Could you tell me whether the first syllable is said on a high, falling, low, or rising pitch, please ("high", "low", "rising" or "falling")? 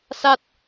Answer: falling